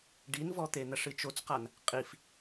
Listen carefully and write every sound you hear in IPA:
ɖinvɔt̪e n̪ɐʂɨt͡ʃot͡sqan | qʼif

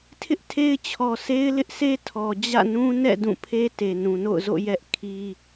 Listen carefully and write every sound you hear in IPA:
tʰɪ˦ʔtʰe˦ɪ̯t͡ɕʰɔ˨ se˦ɪ̯ lɪ˦ʔsʰe˦ tʰɔ˨ d͡ʑä̰˦˨nũ˦ nɛ̰˦˨ dũ˦˨pʰe˦ te˨ nũ˨no̰˦˨ʊ̯ zo̰˦˨ jɛ˦ʔ kʰi˦

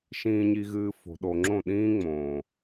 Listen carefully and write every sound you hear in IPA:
ʃĩː˨ɲi˨ɣɨː˨ fo̤˨ɗo˨ŋ͡ǁõ˦˨ ɗĩː˦ŋ͡mõː˨

